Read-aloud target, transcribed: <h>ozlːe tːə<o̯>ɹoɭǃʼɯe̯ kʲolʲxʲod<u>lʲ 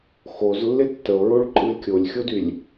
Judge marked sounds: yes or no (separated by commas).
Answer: no, yes, no